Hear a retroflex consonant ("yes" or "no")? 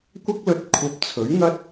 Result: no